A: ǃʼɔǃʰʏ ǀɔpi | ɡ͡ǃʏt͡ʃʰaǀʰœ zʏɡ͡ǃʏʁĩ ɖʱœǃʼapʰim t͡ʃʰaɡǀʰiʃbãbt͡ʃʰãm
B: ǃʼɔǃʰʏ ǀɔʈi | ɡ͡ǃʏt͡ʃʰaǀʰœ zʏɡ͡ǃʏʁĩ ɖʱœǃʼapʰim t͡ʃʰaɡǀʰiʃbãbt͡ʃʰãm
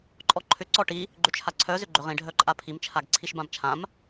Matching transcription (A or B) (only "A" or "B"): B